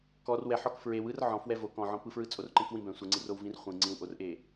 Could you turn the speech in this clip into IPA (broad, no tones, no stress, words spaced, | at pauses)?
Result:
kɔr wɛħɔk fɹew ɯrʕɔ̃fwɛ vok ɔ̃ʕɔ̃pɯfɹɯ t͡sʼorǃẽkwĩbɛ̃ sʷɯŋ͡ǀirow vĩrχʷĩ ŋ͡ǀĩwʔorʔe